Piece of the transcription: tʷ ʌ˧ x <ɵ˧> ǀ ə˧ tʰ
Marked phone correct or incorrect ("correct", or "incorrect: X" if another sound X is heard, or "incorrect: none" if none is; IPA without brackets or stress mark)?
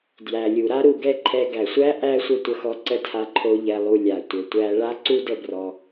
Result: incorrect: ɔ˧